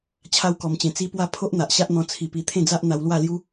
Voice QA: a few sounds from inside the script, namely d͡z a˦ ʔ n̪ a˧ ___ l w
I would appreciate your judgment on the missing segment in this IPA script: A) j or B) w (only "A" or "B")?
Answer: B